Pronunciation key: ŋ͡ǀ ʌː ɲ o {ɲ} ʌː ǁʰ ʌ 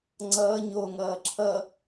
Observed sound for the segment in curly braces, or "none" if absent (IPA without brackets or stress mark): ŋ